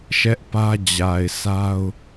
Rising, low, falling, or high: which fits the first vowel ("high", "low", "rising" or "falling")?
high